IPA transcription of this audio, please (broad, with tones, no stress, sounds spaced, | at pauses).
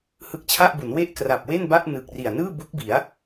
h ɯ˦˥ k̚ t͡ɕʰ a˥˩ ʔ b u˩˦ n w e˥˩ ʔ k r a˨˩ p̚ w e˥˩ n b a˥˩ ʔ n ɯː˨˩ k̚ r i˨˩ a̯ n ɯː˥˩ b u˦˥ k̚ b i˩˦ a̯